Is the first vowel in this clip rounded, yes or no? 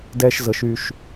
no